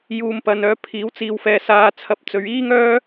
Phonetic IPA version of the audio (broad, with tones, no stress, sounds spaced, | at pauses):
j uː˨ m p ɐ˨ n œː˨˧ pʰ iː˨˥ w t͡s iː˧ w f ɛː˧ s aː˧ t͡sʰ ɐ˧ p̚ t͡s ɵ˨˧ ɥ iː˥ ŋ œː˥